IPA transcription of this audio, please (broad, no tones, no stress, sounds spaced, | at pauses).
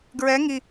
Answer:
ɡ ɹ ɛ ŋ i